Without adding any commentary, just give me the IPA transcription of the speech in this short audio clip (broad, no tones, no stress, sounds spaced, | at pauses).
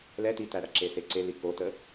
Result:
l ɛ t i t æ ɽ ɐ ǁ e s e ǀ e l i k o t ə